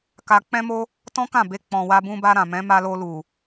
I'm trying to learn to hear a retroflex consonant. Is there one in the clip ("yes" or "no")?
no